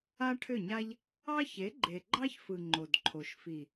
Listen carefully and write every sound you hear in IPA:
a˦ ʈʰ ʏ˦˨ ɲ a˦ ʎ | ɑ˦ ç e˨˦ ɡ͡ǃ e˨ ɡ͡ǃ ɑ˦ ç f ɯ˨ ŋ͡ǃ o˨ d ǃʰ o˨ ʃ f i˨

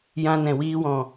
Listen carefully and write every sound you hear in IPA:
j ã˧ n ɛ̃˨ w iː˧ w ɔ̃˨

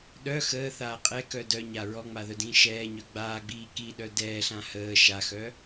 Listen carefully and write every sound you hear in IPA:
ɗ œ x əː θ aː qʼ ɛ k œ d œ ɲ a ɹ ɔ ŋ͡m a ð œ d ĩː ʃ ɛː ɲ œ ɡ͡b aː ɡ͡b iː k i ɗ œ d ɛː ɬ ã h əː ʃ a x œ

